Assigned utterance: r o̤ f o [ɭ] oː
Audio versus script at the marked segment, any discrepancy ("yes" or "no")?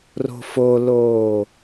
yes